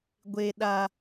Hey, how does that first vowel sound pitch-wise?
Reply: low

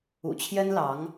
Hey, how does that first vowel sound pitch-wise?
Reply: low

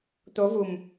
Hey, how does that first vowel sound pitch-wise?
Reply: rising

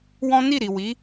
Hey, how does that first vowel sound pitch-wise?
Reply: high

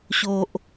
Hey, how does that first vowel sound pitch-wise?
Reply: low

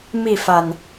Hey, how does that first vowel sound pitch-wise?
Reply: falling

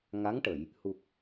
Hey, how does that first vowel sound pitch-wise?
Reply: rising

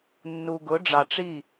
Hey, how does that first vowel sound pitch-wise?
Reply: low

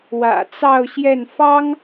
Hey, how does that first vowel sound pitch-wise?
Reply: low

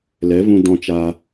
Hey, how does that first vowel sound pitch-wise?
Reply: rising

